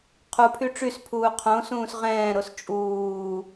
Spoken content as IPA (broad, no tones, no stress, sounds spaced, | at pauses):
qʰ u pʰ y ʈ͡ʂ y s pʰ uː qʰ õ s ũː s ʁ ɛ̃ː ɾ o s t͡ʃʼ uː